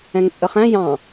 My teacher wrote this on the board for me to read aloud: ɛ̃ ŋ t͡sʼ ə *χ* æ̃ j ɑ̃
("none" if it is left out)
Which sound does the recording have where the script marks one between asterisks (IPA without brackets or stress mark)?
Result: χ